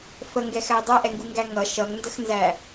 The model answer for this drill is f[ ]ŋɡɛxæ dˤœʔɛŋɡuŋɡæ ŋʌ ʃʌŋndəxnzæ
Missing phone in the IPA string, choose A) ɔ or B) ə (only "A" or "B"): B